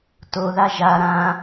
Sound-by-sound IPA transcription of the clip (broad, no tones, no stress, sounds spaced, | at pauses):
t o ð a ʒ a ɾ ã